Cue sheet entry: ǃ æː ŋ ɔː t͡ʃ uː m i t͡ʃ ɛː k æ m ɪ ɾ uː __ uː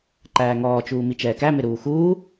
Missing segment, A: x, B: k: A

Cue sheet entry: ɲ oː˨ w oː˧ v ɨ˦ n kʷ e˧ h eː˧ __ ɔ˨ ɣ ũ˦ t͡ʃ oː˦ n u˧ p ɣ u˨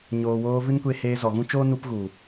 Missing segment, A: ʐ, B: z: B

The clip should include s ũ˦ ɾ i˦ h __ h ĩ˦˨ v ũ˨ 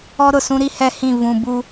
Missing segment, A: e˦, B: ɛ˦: B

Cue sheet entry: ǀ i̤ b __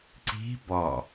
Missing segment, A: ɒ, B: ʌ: A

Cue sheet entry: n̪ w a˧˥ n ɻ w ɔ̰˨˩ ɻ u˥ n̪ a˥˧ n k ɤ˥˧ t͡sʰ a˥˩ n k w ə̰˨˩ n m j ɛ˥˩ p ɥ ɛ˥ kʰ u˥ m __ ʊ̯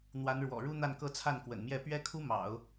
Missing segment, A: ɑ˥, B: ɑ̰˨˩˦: B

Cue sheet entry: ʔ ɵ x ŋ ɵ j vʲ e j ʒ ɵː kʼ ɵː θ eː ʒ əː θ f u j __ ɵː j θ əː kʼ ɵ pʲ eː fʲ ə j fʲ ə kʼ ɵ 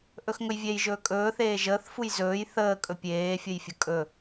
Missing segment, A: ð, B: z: B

